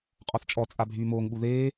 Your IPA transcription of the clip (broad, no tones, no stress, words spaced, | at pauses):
qʼɔθt͡ʃʼɔ t͡sʼabʱyːmoːŋɓu ðeː